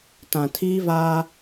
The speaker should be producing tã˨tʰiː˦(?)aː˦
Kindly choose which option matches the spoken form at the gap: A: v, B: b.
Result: A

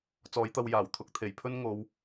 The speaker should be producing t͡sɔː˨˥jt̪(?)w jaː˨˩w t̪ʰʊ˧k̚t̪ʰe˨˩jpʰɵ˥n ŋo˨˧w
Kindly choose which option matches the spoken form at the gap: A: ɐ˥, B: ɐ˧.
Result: B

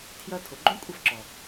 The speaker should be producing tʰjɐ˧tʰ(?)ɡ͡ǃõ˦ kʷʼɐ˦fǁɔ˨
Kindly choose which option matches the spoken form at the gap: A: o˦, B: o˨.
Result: B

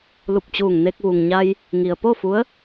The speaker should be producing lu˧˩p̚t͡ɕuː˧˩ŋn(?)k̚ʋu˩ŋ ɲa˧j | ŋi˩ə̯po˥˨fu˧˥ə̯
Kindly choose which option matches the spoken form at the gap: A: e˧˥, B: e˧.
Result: B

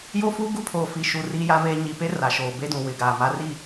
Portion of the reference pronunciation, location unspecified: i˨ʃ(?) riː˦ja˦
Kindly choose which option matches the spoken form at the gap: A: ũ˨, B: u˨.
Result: B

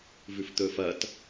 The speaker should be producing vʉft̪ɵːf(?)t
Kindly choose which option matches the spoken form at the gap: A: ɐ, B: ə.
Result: A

